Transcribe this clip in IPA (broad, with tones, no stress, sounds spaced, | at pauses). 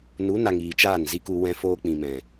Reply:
n u˨˦ n a˨ ŋ iː˨ t͡ʃ aː˦˨ n z i˦ k u˧ w ɛ̃˦ f oː˦ k͡p ĩ˨ m ɛ̃˨